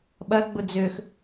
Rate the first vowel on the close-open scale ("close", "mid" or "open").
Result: open